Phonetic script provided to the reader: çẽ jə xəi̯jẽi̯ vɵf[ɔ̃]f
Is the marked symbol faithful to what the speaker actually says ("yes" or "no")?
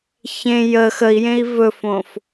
no